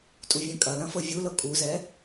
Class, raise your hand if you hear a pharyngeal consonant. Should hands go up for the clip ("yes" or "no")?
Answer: no